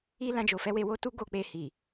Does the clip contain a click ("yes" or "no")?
no